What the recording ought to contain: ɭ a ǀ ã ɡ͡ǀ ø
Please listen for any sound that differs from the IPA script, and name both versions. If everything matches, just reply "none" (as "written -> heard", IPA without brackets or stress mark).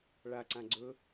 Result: ø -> ɵ